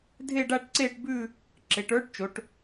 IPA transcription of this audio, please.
dʱ e˥˧ ɖ a˥˧ ʈ ǀ eː˥˧ ʈ b ʉ˥˧ | ǁ e˩˧ ʈ ə˞˧˥ ʈ t͡ʃ o˩˧ ʈ

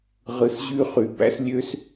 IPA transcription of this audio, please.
ʁ ɯ˨ s ʑ y˦ χ y˨ b æ̰˦ s lʲ ø˦ s

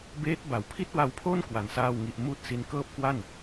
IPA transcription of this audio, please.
b eː˦˥ t̚ b a˩˦ w pʰ i˥˩ t̚ w a˦˥ w pʰ o˥˩ n k w a˧ n s aː˥˩ w ŋ i˦˥ ʔ m uː˥˩ t̚ s i˦˥ n k ɤː˥˩ p̚ k w a˥˩ n

